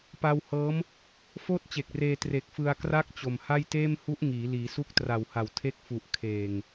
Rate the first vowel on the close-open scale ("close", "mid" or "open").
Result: open